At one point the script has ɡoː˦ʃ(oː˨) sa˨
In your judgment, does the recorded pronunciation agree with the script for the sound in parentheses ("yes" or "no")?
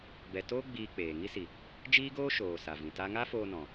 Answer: yes